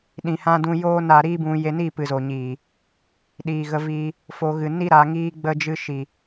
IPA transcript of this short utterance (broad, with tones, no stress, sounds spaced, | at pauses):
ɗ ĩ˨ h ã˦ d ũ˧ j oː˦ n a˧ ɾ iː˦ b ũ˧ j e˧ n i˦˨ p ɨ˨ z o˨ ɲ iː˨ | ɗ iː˨ ɣ ə˧ v iː˧ | f o˨ ɣ ɨ˨ n i˧ ɾ a˨ ŋ iː˧ ɡ͡b ə˧ d͡ʒ ɨ˧ ʃ i˨